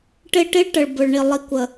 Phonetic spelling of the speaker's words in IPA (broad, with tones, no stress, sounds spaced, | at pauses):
ʈ ɪ˦˨ ʈ i˦ ɭ ʈ ə˨ ɭ b ʊ˨ ɭ ɳ i˨ lˠ i˨ kʷ ə˨